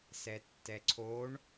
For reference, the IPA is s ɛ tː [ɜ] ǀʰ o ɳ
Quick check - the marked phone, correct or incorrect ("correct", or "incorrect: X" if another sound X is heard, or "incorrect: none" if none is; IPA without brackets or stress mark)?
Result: incorrect: ɛ